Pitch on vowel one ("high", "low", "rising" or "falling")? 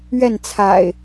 falling